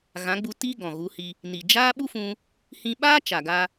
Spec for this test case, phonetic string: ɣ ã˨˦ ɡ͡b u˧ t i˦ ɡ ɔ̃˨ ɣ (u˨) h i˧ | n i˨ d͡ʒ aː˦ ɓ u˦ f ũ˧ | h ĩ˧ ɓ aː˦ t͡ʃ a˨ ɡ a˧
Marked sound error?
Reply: yes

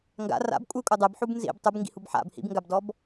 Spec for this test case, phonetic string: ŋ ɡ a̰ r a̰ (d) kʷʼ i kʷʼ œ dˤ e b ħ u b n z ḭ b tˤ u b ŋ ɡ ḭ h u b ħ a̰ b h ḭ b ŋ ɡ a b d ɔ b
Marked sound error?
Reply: yes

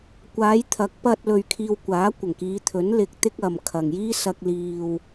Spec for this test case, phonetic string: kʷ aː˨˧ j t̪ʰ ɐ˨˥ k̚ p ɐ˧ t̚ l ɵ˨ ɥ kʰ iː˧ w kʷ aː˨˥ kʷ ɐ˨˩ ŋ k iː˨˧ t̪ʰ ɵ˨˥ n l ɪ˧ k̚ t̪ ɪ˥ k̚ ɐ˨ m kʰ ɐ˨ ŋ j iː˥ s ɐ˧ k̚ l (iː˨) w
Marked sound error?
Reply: no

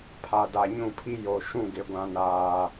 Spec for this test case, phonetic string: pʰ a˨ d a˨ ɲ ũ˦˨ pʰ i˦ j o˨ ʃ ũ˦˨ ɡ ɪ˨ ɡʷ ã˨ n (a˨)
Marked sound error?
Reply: yes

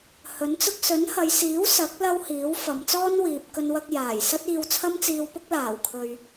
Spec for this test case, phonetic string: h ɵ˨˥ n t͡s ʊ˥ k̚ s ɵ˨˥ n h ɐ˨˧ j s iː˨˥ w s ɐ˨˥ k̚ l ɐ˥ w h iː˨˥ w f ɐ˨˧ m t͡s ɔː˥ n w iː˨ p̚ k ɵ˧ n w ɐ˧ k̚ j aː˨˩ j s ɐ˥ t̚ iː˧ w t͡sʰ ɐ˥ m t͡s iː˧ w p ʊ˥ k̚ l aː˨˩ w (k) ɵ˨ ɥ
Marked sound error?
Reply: yes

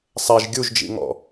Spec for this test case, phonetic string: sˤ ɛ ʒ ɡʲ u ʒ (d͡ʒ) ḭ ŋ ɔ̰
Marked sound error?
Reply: no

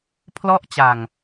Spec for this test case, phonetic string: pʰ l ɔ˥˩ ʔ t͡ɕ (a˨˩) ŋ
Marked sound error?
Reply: no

